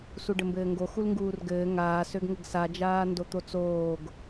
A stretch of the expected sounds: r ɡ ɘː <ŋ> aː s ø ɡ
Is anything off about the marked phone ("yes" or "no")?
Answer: no